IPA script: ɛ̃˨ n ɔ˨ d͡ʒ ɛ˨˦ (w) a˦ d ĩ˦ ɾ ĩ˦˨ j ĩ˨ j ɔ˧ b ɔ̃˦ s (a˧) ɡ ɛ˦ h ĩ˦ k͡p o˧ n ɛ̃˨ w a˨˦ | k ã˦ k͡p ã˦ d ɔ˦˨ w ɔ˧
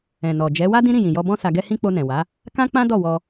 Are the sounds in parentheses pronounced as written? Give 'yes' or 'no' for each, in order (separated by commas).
yes, yes